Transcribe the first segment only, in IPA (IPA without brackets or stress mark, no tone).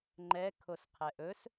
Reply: ŋ͡ǃ